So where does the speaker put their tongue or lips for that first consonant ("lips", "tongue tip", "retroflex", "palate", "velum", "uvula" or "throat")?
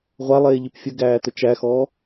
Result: uvula